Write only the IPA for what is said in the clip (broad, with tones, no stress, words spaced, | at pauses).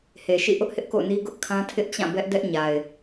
he˨ʃḭ˦˨ʔʊ˦ʔhɪ˦ʔ ko̰˦˨ʊ̯ni˦ ɡʊ˦ʔkʰã˦tʰɪ˦ʔ t͡ɕã˦˨bɛ˦ʔ dɛ˦ʔɲa˨ɪ̯